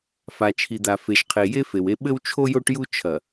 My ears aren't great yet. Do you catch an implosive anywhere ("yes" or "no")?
yes